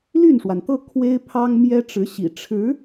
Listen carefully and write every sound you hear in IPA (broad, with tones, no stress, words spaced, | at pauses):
ly˥˩nʂwa˩nt̪ɤ˥˩ kʰwe˥ɪ̯pʰɑ˥ŋ mjɛ˥ʈ͡ʂɻ̩˧˥ɕḭ˨˩ ʈ͡ʂʰɻ̩˧˥